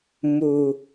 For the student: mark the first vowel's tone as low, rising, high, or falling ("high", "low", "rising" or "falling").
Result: low